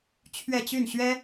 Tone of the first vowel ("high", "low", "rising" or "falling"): falling